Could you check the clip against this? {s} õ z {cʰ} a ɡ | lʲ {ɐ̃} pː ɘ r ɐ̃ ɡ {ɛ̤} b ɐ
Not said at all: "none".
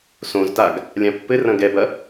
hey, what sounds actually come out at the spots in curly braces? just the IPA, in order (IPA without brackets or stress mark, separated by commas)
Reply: s, t, ã, ɛ